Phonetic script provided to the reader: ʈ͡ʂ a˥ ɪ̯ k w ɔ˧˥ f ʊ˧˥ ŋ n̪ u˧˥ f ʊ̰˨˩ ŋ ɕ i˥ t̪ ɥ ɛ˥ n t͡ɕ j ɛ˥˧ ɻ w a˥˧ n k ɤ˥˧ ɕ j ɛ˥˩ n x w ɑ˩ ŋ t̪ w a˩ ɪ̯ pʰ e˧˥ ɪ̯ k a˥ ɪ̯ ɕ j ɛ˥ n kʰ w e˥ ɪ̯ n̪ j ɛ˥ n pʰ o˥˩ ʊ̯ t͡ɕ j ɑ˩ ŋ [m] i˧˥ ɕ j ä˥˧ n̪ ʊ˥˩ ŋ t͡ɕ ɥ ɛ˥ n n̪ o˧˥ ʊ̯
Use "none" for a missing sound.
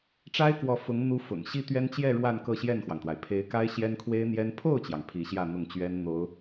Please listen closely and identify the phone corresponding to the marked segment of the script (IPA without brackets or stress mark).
pʰ